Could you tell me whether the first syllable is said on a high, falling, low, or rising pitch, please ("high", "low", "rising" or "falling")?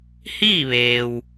falling